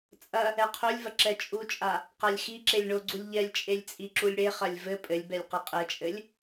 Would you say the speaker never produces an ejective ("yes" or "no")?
no